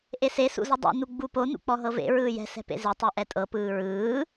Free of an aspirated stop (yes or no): yes